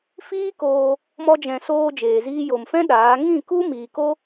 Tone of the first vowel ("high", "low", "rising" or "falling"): high